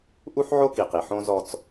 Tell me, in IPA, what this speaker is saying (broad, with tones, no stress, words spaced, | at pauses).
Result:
ʔu˦ħʕo˦ki˨qi˨ ħõ˦zɔ˦t͡s